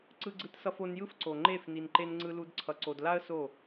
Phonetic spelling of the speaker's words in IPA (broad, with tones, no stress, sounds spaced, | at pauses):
ǀ ɯ˦ ɡ͡ǀ ɯ˦ t s ʌ˦ f o˧ n j ɯ˦ f ǀ o˨ ŋ͡ǃ e˦˨ f n i˧ n ǃ e˦ n ŋ͡ǀ ɯ˦ l u˦ d ǀʰ ʌ˧ ǀ o˧ d l a˦ ə̯ s o˦˨